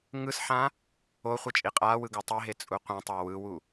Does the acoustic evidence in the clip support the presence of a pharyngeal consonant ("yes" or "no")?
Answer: yes